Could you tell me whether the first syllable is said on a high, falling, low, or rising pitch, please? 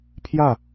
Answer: falling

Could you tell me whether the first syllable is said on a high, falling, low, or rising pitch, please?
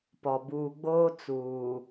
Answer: low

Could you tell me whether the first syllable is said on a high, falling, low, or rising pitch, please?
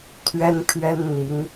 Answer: high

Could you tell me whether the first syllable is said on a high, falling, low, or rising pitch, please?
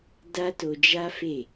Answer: high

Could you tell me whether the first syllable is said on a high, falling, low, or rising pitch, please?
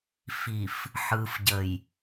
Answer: low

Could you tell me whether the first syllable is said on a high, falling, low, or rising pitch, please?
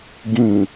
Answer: low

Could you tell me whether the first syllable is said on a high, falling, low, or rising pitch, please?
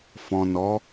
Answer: low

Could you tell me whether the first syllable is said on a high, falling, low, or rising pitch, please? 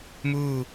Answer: falling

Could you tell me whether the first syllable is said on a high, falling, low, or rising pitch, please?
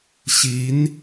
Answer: rising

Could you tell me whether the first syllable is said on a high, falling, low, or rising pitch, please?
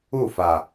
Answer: falling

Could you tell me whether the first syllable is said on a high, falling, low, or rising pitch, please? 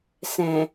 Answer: low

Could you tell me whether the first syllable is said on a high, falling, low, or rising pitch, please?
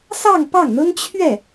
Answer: falling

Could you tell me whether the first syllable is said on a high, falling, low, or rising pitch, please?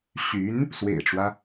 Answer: rising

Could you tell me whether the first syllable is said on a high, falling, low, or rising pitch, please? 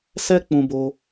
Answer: high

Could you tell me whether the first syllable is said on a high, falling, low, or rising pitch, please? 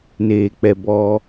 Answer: low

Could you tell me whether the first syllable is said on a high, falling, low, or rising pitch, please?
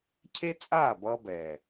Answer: high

